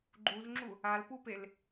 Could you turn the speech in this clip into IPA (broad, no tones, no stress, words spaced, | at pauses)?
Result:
ɡ͡ǃuzŋ͡ǁu | alpupel